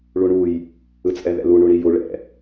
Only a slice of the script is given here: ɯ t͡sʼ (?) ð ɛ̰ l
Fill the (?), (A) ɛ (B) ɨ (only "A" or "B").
A